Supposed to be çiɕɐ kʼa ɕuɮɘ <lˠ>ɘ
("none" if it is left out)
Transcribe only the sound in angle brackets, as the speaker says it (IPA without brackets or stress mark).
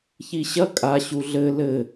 l